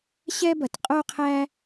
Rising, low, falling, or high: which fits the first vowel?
high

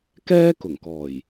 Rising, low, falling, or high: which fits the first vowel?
high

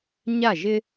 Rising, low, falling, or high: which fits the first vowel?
falling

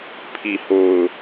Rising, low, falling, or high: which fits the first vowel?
low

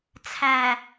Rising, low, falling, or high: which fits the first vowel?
low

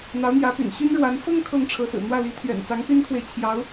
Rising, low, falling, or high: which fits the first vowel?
rising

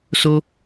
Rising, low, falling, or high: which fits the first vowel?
high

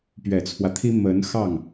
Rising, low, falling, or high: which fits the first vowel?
low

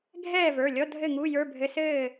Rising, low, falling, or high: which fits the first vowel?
falling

